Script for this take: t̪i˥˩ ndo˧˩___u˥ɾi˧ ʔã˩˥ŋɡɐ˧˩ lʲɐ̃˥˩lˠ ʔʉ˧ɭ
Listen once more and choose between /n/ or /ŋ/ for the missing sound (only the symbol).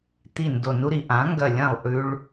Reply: n